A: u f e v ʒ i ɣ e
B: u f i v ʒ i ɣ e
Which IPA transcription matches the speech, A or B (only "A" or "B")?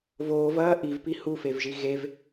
A